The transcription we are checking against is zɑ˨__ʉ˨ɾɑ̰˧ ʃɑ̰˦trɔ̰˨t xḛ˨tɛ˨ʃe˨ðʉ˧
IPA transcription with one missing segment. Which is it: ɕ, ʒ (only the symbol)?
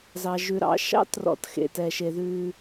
ʒ